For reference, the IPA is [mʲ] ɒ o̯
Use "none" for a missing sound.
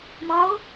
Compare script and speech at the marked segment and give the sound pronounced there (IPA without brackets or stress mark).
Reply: m